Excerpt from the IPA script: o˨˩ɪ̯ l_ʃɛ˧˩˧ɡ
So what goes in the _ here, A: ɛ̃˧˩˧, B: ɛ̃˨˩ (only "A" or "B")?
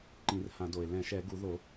A